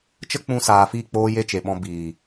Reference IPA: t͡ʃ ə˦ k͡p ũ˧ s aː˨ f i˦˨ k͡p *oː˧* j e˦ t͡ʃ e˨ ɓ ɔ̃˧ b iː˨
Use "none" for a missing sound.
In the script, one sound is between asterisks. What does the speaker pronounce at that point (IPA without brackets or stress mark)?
oː˧